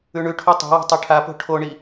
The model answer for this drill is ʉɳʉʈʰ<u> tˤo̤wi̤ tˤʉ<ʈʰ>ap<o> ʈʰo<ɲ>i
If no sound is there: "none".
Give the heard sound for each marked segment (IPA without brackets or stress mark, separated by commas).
u, ʈʰ, o̤, ɳ